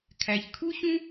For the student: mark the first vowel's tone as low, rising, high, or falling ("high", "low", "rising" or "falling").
low